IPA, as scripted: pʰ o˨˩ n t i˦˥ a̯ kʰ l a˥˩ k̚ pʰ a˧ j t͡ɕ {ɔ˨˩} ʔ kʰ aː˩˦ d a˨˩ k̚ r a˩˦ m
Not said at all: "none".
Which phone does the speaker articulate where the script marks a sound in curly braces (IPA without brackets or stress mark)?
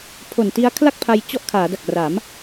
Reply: ɔ˥˩